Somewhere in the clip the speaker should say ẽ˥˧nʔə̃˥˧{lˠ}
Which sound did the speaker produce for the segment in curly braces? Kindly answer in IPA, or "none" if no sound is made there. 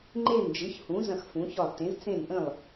lˠ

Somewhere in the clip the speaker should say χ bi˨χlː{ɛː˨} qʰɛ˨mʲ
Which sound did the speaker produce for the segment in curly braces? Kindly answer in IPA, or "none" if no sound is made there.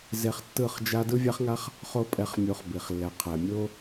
ɛ˨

